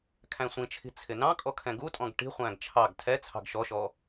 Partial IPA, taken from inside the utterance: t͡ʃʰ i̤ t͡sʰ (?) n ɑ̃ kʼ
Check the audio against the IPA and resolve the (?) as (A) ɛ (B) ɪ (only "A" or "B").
B